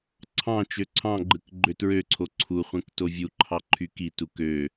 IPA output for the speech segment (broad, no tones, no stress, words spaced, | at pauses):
ǀʰɑ̃ t͡ʃøǀʰɑ̃ɡ͡ǃɯk ɡ͡ǃøtɹøǀʰo ǀʰuχʷẽk tovʲuǃʰɑ ǃʰykitu kø